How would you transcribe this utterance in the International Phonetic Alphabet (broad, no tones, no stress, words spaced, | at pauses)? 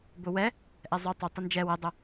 bʊwɛ | ʔɛzˤʊ tˤʊ tˤɘnd͡ʒɛ wɘdˤʊ